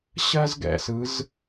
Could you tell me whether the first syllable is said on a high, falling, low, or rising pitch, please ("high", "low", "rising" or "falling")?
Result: high